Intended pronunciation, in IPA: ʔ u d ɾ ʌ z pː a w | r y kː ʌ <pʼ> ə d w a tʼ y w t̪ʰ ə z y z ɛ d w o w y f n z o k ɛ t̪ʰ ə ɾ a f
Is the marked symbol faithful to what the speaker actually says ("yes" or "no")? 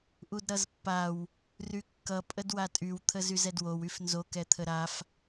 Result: yes